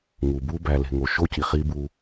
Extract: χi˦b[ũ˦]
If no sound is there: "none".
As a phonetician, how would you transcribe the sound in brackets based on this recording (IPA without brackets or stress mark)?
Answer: u˦